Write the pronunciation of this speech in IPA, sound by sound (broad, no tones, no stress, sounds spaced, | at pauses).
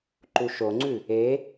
ǃ u ʃ o ŋ͡ǀ ʉ | e